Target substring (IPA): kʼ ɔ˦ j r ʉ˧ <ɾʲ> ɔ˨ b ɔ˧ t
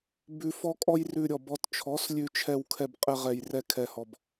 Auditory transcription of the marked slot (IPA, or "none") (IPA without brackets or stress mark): ɾʲ